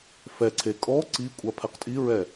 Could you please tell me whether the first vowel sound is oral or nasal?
oral